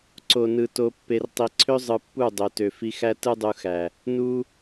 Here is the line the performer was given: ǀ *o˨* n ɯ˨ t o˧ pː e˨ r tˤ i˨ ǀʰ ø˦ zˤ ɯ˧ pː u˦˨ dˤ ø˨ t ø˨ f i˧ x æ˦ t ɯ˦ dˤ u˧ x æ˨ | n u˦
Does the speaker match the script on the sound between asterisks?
yes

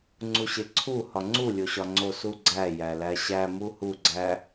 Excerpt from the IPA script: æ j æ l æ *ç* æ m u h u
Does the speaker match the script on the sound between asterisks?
no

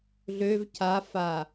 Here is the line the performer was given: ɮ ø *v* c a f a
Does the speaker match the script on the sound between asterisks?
yes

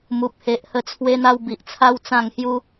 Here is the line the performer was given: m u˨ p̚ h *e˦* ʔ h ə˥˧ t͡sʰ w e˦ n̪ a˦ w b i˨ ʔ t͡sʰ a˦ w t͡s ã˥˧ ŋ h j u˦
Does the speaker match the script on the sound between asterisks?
no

